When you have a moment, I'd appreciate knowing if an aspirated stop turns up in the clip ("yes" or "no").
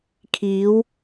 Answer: yes